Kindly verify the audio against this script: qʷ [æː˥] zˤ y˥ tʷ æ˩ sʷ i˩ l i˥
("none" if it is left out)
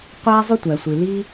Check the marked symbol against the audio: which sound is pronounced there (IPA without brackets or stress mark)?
æː˥